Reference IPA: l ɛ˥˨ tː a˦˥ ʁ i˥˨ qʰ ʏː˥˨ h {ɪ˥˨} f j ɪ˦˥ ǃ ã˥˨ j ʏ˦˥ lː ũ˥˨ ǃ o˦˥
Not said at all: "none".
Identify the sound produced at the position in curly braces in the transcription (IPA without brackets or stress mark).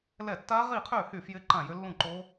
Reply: y˥˨